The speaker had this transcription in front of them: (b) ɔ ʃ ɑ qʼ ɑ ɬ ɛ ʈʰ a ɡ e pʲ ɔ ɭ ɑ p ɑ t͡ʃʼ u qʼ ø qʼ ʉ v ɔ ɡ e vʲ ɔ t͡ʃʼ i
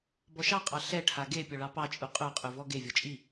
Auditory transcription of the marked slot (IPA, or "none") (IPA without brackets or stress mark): b